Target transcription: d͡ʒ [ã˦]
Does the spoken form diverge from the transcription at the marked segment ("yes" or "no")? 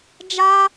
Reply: yes